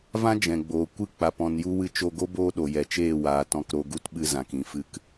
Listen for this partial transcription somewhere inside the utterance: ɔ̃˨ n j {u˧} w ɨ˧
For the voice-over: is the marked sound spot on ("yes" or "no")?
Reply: yes